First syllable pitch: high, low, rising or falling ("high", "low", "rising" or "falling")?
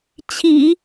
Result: low